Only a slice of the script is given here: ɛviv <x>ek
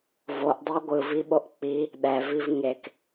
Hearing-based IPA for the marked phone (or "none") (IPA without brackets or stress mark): ŋ